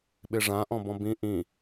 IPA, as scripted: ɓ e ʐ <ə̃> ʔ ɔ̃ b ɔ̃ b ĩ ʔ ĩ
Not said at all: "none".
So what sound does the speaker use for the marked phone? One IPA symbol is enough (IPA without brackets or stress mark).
ã